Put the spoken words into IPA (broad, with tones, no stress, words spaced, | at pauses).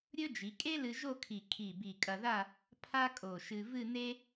ɾʲɵ˥ d͡ʒi˩˧kʼe˥lɨ˧ ʒo˥˧kʰi˧˩ kʰi˧˩ bi˧˩kʼɐ˧ða˥˧ | pʰa˥kʼo˧˩ʃɨ˧ vɨ˥˧ne˥